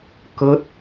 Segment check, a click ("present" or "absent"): absent